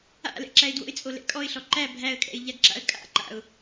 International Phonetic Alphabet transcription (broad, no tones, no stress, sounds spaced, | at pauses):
a̰ l ɛ̰ ǁ æ ɪ̯ d w o̰ ɪ̯ t͡sʼ o l ɛ̰ kʼ ɔ ɪ̯ ɬ ɔ ǃ æ bʱ æ ə̯ kʼ ɛ̰ ɪ̯ ʎ a ɡ ǁ a̰ ə̯ kʼ a̰ ǃ a̰ ʊ̯